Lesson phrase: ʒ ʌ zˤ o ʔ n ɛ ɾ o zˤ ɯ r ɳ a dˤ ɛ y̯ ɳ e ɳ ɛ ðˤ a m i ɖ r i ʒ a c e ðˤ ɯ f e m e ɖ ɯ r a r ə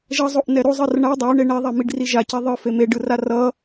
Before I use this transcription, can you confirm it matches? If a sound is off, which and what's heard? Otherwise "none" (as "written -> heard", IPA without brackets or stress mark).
ə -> ʌ